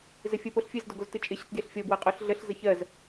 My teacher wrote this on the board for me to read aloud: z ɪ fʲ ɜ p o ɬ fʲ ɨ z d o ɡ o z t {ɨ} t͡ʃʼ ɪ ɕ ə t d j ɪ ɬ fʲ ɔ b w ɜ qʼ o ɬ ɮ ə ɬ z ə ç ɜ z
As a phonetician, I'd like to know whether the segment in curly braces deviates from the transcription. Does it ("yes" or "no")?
no